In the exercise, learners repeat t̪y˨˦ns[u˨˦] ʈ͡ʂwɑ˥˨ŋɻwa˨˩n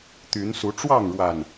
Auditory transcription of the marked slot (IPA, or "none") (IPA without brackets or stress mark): u˨˦